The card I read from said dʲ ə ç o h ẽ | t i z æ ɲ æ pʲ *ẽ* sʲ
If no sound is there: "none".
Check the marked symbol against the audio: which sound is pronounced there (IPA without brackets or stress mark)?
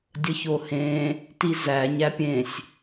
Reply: ẽ